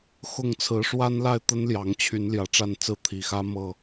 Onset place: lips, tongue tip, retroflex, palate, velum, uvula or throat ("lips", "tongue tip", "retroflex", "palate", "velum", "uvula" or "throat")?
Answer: velum